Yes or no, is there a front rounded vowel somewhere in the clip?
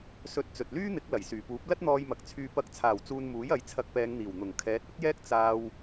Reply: yes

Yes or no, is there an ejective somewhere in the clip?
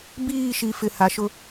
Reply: no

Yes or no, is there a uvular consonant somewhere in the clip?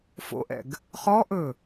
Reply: yes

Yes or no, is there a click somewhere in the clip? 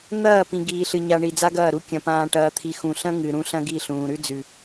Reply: no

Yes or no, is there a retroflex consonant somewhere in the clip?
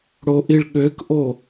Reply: yes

